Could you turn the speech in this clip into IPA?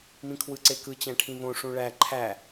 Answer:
mĩkʰwɯǀekɯ t͡ɕæ̃ʈʰĩβõ ʂũɭæ ǃʰæ

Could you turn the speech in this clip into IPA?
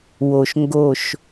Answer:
wo˨ʃŋɡo˦˨ʃ

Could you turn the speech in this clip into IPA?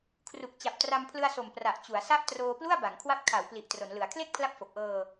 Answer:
kʰru˨˩k̚t͡ɕa˨˩p̚ tra˧mpʰlɯ˧a̯so˨˩m pra˨˩ʔ t͡ɕu˩˦a̯sa˥˩ʔ troː˧plu˥˩a̯ba˩˦ŋ kʰwa˦˥p̚ kʰa˩˦w pli˨˩ʔ tro˩˦nlɯ˩˦a̯ kʰle˥˩k̚pʰla˦˥p̚ fo˨˩k̚ʔɤː˧

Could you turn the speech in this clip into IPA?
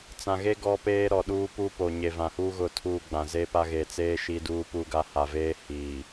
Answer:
t͡sã˨ɣe˦ ɡɔ˦peː˦ɾɔ˨ɗuː˦ pu˦ po˨ɲe˨ vã˨huː˦ ɣʊ˨tʰuː˨ ɡ͡bã˨zeː˦pa˦ ɣe˨t͡seː˦ ʃiː˦duː˦puː˦ɡa˦ ha˨veː˦hiː˨

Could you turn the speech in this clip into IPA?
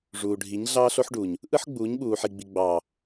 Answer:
ʐuː˨ɖʱi˨˦ɲ ɮɑː˦ɬo˦ħɖuː˨ɲ | ʔɯ˦ħ ɡ͡buː˨˦ɲɓuː˨ħi˨ɡ͡bi˨ ɡ͡bɑː˨

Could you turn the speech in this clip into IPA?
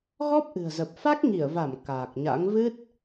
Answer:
ɣɔ˦˥p̚ʔɨ̤˨˩ə̯zə˨˩p̚fa˦˥k̚ ŋi˧˩ə̯va˧˩m kaː˨˩k̚ɲa̰˧˥ŋ vɨ˦˥t̚

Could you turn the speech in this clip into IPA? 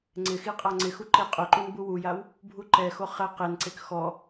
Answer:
ŋ͡ǀɪxi qʼaŋ͡ǀɪxu ǃeqʼʊǃun buwujaw | bʱuǃɛxo χɛ qenǀek xɔ

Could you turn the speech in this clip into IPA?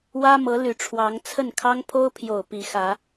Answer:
wä˥mɤ˧˥ ly˨˩ʈ͡ʂʰwɑ˧˥ŋ t͡sʰə˥˩nkʰɑ˥ŋ pʰo˥ʊ̯pʰjo˨˩ʊ̯ pi˧˥xä˧˥

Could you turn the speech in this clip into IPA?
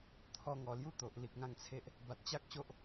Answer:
t̪ʰɔ˧ŋɔ˨˩lju˦t̪o˨ʔ li˨k̚ŋã˧ŋt͡sʰe˦ʔ | ba˨t̚t͡ɕa˦k̚ɕo˦ʔ

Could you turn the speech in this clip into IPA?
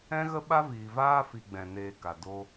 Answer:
ɛ̃˦ɣə˦ ɓa˦viː˨vaː˦fi˨ ɡ͡bɛ̃˨ neː˧ka˨ do˧

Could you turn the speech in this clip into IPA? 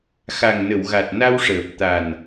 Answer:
xa˨˩ŋnə˨˩˨wɣa˨˩t̚ na˧wʂəː˨˩p̚ t̪a˨˩n

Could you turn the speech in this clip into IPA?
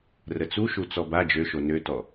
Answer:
rət͡suʃu t͡sɔba d͡ʒøʃo nøtɔ

